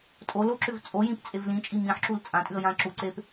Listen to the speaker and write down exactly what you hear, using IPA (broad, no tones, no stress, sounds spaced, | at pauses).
tʼ o l o ǁ ʏ v t͡sʼ o j ĩ p t͡sʼ e v l ĩ t͡ʃʼ i m ĩ ħ ǁ u l t͡sʼ ã tʼ ʉ ə̯ j ã ǁ u ǀ e p